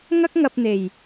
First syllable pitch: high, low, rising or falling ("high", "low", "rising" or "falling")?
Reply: high